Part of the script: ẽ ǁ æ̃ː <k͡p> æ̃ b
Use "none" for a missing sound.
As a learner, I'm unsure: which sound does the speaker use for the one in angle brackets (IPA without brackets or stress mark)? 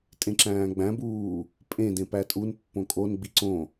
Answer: ɡ͡b